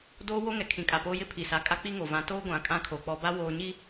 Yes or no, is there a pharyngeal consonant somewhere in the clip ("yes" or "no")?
no